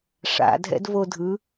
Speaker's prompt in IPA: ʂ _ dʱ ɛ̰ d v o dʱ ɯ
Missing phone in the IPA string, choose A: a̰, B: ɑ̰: A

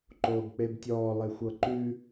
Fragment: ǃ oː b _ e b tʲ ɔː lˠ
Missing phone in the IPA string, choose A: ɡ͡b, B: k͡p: B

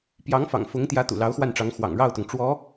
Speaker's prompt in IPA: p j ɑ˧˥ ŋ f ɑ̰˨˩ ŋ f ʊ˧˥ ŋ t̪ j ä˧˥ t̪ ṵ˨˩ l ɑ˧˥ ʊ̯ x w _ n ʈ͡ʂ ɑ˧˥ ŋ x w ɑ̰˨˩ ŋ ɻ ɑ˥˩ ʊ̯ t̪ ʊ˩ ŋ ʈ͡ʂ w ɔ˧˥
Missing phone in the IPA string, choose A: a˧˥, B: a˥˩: B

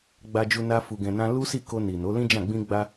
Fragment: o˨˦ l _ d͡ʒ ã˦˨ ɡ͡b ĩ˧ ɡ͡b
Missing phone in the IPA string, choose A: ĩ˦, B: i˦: A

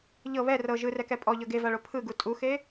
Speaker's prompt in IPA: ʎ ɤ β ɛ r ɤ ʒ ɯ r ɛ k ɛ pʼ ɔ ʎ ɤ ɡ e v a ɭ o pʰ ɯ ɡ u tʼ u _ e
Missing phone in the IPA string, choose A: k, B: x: B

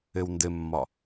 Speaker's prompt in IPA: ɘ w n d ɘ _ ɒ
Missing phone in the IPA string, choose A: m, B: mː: B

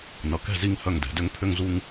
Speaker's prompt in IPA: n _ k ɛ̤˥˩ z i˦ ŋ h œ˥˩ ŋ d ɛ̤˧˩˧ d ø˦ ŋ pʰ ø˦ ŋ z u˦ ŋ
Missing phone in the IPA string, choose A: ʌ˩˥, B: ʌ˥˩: A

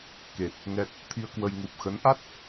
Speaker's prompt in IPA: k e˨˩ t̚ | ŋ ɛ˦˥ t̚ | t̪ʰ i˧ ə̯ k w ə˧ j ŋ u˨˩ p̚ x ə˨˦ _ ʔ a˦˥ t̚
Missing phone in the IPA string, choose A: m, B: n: B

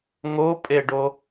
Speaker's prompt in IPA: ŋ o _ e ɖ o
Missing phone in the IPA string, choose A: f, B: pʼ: B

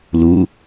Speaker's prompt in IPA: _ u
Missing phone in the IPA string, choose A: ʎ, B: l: B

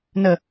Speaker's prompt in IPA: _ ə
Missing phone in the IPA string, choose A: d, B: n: B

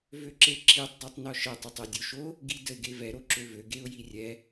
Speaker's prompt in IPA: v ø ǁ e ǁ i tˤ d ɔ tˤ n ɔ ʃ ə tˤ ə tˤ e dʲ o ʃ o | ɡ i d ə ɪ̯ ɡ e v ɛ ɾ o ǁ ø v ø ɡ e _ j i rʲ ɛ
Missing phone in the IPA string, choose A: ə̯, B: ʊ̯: B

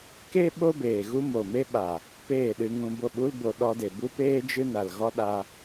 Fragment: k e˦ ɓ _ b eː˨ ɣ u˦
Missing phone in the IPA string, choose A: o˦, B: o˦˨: A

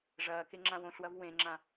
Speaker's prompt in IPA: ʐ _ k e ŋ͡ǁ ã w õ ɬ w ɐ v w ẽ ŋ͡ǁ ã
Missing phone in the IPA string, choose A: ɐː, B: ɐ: A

